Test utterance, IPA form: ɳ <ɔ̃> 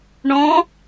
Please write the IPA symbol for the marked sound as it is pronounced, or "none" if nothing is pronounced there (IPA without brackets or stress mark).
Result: ɔ̃